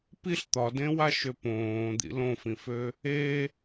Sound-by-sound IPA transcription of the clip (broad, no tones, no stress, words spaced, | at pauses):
piɬ t̪ɒdẽwaʃø põː d̪ḭlõfĩfø | e